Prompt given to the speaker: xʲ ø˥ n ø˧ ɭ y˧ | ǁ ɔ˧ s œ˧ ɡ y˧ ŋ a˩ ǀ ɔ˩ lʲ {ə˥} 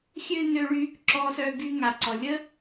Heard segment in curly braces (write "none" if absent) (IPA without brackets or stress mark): ə˥